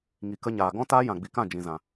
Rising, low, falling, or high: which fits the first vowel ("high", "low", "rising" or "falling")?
low